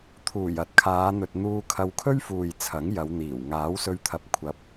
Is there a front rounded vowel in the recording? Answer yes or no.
no